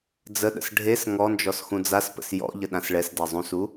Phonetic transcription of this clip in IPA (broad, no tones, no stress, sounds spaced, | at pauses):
d͡z ə ɗ ə̰ s ɖʱ e s ŋ ɔ n d͡ʒ ɔ s x ũ d͡z a s p ə̰ s j ɔ̰ ʎ ə ɗ ã s ɭ ɛ s d ɛ zˤ ũ s u